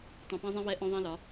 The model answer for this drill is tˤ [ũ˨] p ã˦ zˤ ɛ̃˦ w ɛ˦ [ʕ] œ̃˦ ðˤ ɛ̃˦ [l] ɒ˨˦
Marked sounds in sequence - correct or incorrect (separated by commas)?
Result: correct, incorrect, correct